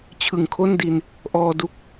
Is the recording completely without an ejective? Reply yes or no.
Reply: yes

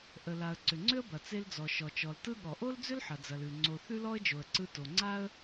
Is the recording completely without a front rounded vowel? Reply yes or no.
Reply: no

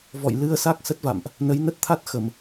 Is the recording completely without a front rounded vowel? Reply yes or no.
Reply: yes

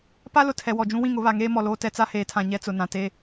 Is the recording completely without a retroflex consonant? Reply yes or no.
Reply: yes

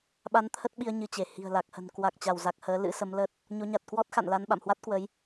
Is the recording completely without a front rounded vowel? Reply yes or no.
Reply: yes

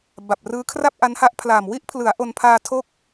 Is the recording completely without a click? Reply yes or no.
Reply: yes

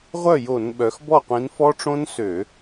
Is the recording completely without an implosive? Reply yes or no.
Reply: no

